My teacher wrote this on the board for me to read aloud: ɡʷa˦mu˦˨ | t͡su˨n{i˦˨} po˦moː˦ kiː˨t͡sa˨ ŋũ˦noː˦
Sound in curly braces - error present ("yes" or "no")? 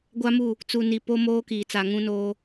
yes